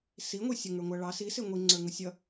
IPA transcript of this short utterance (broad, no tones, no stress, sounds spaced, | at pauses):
s i ŋʷ i sʲ ʊ ŋ ə˞ ŋʷ æ ɭ ɑ s i s ɪ ŋʷ i ŋ͡ǀ ə˞ ŋ ʊ sʲ ʌ